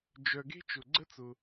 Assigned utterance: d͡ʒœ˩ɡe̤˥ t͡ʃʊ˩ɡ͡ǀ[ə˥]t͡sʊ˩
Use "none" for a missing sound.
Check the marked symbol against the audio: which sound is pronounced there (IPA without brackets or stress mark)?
ə˥